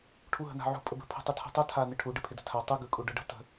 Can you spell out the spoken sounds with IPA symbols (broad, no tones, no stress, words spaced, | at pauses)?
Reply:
ʈʰuɦə̤na̤ʕṳ pʼəbə̤ pʰṳtˤɯtʰṳtˤu tʰa nɪʈʰu ɖɪpʰɪdə̤tʰa tˤɯ ɡɯkʼuɖɯɖə̤ tə̤